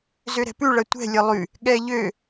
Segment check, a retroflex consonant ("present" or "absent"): present